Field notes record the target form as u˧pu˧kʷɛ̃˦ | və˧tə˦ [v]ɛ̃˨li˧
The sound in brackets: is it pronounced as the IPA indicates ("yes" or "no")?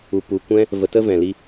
yes